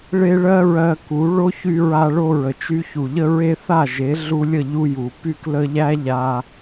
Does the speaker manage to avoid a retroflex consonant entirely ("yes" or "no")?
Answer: no